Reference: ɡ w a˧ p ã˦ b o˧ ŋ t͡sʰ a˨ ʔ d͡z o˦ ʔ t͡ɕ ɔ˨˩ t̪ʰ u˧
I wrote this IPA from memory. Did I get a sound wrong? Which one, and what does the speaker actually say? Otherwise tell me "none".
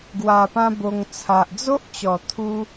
none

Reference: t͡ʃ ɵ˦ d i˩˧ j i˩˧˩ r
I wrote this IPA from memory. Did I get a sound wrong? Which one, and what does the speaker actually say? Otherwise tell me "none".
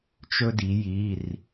none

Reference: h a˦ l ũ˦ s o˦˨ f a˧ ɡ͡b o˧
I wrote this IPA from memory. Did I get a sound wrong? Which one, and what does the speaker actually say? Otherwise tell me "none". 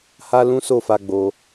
none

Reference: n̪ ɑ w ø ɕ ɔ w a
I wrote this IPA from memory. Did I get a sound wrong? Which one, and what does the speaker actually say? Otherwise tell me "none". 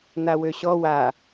ɑ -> a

